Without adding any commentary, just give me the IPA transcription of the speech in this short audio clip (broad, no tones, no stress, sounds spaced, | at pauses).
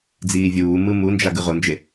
d͡z iː vʲ uː m ɯ m u n d͡ʒ a ɡ ɯ ʁ o n d͡ʒ e